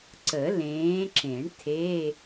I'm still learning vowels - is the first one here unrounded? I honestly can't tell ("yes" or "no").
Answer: yes